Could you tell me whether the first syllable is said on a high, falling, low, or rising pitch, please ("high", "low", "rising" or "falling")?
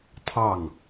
falling